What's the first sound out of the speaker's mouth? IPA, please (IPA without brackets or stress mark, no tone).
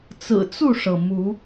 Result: t͡s